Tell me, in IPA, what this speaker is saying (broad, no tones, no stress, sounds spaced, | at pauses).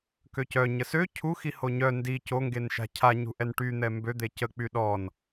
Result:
k ø c œ ɲ ə s ø cʰ u x i h o ɲ œ n d i c o ŋ ɡ e n ʃ a̤ cʰ a ɲ ṳ ʔ ɛ n ʈ y n̪ ɛ m b ø d̪ e c ə k͡p y ɗ ɔ n